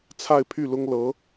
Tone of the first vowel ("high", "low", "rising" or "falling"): falling